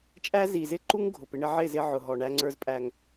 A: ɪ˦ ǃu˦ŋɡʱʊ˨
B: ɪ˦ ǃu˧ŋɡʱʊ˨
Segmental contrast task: A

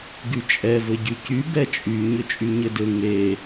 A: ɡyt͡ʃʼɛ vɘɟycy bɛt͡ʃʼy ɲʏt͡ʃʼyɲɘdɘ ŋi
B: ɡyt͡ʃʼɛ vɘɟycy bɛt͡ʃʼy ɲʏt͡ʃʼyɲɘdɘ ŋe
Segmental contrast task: B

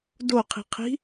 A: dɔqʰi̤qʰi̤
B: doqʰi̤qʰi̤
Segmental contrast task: B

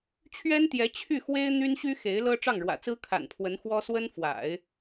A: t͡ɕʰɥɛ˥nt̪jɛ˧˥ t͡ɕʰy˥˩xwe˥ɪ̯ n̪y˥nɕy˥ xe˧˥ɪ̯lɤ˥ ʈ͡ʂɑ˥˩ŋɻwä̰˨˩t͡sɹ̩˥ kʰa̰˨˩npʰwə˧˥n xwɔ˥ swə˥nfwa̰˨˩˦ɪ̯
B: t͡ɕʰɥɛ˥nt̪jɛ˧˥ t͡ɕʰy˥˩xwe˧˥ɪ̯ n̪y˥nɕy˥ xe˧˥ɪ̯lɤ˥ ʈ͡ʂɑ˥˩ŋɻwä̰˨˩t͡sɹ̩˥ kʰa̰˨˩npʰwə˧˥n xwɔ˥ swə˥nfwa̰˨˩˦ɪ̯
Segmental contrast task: A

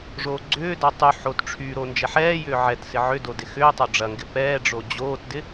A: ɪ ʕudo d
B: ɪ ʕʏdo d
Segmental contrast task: B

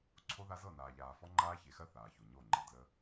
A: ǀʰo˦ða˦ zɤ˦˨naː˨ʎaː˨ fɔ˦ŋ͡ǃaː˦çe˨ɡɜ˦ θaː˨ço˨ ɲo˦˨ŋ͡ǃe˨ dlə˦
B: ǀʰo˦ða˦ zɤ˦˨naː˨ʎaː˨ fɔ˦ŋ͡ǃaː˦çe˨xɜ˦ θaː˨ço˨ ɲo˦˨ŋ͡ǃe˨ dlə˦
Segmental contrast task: B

